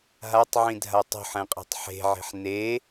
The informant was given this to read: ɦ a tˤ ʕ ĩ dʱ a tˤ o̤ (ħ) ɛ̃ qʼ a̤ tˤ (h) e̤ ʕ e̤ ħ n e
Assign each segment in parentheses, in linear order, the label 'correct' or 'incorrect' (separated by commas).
correct, incorrect